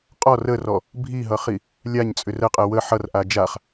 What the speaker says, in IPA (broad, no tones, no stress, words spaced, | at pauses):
qʼɔ rərɔ | bʱiɦʌχi | lʲaɲt͡sʼʏr əqʼɛ wə ħʌrʔa d͡ʒaχ